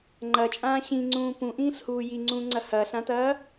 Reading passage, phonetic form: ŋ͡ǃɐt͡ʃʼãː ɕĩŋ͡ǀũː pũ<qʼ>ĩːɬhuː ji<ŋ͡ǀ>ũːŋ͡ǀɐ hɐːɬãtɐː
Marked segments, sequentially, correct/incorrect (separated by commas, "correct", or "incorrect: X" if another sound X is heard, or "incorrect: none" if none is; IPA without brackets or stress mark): incorrect: ʔ, correct